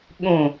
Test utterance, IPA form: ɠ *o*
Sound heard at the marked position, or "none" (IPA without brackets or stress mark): õ